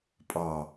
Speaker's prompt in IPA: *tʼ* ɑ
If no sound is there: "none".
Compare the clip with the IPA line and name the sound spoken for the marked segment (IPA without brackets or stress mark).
pʼ